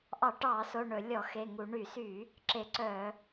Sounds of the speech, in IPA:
ʔɑ˧˩˧ʈɑː˧˩˧so˩˧˩ ɳɵ˧˩˧ lʲɔ˧˩˧xe˩˧˩ ŋu˧˩˧ ɳy˧˩˧syː˧˩˧ | ǁe˧˩˧ǀœː˧˩˧

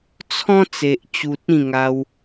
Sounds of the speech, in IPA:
t͡sʰɔ̃˦ t͡se˨ʔt͡ɕu˨t̚ ĩ˥˧ŋa˧w

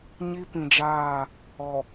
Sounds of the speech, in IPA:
ɲi˦pĩ˨d͡ʒaː˦˨ | ɔ˨

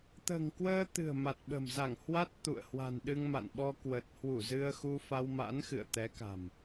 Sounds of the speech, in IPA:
t̪ə̤ː˨˩ŋkwəː˧t̪ɨ̤˨˩ə̯ ma˨˩t̚ɓə̤˨˩mza˧˩ŋ hwa˦˥t̚ t̪ṵ˧˨ə̯ hwa̤˨˩nɗɨ˧ŋma̰˧˨nɓɔ˧ kwə˨˩t̚hwu˧˩ zɨ˧ə̯ xu˧fa˧wma̰˧˥n xɨ̰˧˨ə̯t̪ɛ˨˦ka̤˨˩m

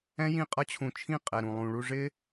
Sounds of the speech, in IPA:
ɛ̃˦jĩ˦˨qʼʌ˦t͡ɕʰũ˧ t͡ʃʰĩ˦˨qʼɛ˨ɾũ˨ lˠũ˨ɭu˧ ʐɪ˦

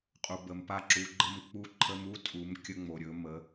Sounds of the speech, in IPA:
qʼu˩bə˩mpa˧ǁu˩˧ ɡ͡ǃə˧m k͡pu˧ǃʰə˧mu˥tʼu˩˧m kʲə˧ŋ͡mo˩ɾʲɵ˩˧ mə˩˧

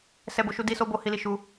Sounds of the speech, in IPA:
sɛ˦bo˦ʃu˦ di˦so˦bo˦ hi˦li˦ʃu˦

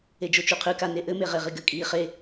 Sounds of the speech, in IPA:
ed͡ʒot͡ʃuqʰɨ kaneʔɘ meʁeʁiɡɘ kʼiːχe

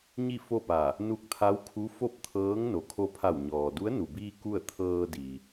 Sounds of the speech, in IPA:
ɲi˥˨fo˥˨pa˧˩ | nu˧k̚t̪ʰa˧˥wkʰu˧˥ fo˥˨p̚t̪ʰɤː˧˥ŋ no˩˧kʰo˧pʰa˧˩w ɲɔː˩du˧˥ə̯ nu˩biː˧ ku˥˨ə̯ t̪ʰɤː˧di˩

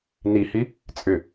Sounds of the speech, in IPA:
nihi | t͡sʼʏ

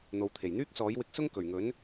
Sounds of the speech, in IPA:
n̪o˨wt̪ʰe˨˩jn̪yː˥k̚sɔː˨˥j wɪ˧k̚sʊ˥ŋ kɵ˨˩ɥŋɵ˨˥n

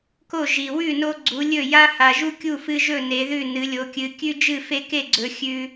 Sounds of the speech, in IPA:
ko˥˨ ʒi˨ wʉ˥˨no˦ ɡ͡ǀu˨˦lʲɵ˥˨ ja˦ha˨ʒu˦ kʲu˥˨fɨ˦ʒɵ˥˨ ne˨˦ðʉ˥˨ nɨ˨˦lʲo˨˦kʲɨ˨˦ kʲʉ˦ d͡ʒɨ˥˨fe˦ke˥˨ɡ͡ǀɵ˨˦ xʲʉ˦

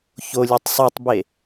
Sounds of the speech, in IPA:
çolʲøtˤ sˤutˤbe

